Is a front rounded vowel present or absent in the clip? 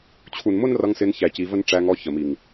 absent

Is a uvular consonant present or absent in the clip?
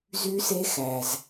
absent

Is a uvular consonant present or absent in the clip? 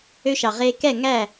present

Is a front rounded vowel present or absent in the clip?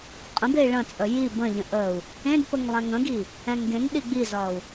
absent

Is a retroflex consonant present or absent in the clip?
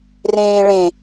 present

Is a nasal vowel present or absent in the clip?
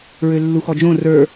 present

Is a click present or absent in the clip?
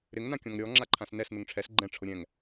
present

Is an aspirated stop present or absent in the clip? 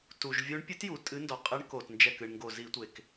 absent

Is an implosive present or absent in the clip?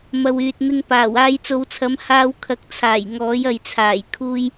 absent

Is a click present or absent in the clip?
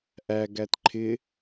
present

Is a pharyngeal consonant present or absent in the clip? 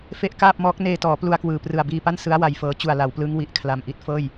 absent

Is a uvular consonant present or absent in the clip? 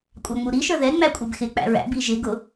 absent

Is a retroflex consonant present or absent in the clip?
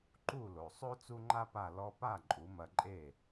absent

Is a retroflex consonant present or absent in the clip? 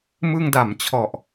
absent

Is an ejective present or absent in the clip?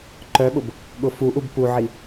absent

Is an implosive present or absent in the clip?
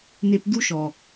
absent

